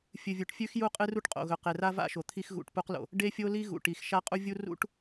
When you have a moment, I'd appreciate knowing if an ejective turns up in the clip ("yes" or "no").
yes